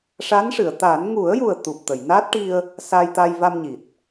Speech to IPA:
ʂ a˧˥ n ʂ ɨ˨˩˨ ə̯ t̪ a˨˩˦ n ŋ u˨˩˦ ə̯ j u˨˩ ə̯ t̪ u˨˩ p̚ t̪ ə˨˩˨ j n a˦˥ t̚ ʈ i˧ ə̯ | s a˧ j t̪ a˧ j v a˧ m ɲ i˨˩ t̚

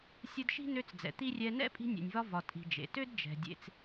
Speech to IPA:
sʲ ɯ˦ d ʃ i̤˥ n ø˦ t͡s d͡z ɛ̰˨ t̪ i˥ rʲ ɛ˦ n ɛ̰˥ pʼ i̤˦ nʲ ḛ˨ nʲ v ɒ˦ v ɒ˨ tʼ i̤˨ d͡ʒ ḛ˩ t ø˥ d d͡ʒ ɛ̤˨ dʲ ḛ˨ t͡s

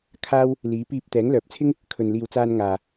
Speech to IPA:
kʰ aː˥ w | l iː˨˥ p iː˧ p̚ t̪ ɛː˨˥ ŋ l œː˨ p̚ t͡sʰ ɪ˥ ŋ | kʰ ɵ˨ n l iː˨ w t͡s aː˧ n ŋ aː˨

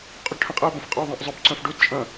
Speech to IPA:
qʼ u ɖ ʈʰ ə̃ qʼ ə ʊ̯ b ə̃ f qʼ o ðˤ ẽ ʔ zˤ ø b ǀ œ̃ f ɖ u d t͡ʃʼ ɐ̃

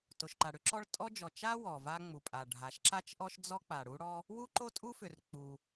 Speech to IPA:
t o˩ ʃ ǃ a˩ ɽ ʏ˥ ǁ ɔ˥ ɭ tʼ ɔ˥ d͡ʒ ɔ˩ t͡ʃ a˥ w ɔ˩ v a˥ ŋ͡m u˩ pʼ a˩ ɖʱ a˩ ʃ ǁ a˥ t͡ʃ ʔ ɔ˥ ʃ d͡z ɔ˥ k͡p a˩ ɽ u˥ ɽ ɔ˥ | w u˥ ǃ o˥ tʼ u˥ f ʏ˩ r k͡p u˩

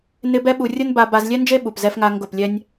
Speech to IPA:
n ɪ˦ b ɛ˦ ɓ u˧ rʲ ʊ˦ n b a˧ b a˧ z lʲ ɛ˦ n d͡ʒ e˦ ɓ u˨ p z ɛ˦ f ŋ a˦ ŋ ɡ ʊ˦˨ p lʲ ɛ˦ nʲ

